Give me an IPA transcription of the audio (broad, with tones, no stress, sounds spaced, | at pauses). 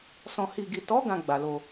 s ɔ̃˨ h i˨ ɡ i˨ t ɔ˨˦ ɡ ã˧ ɡ͡b a˨ l o˧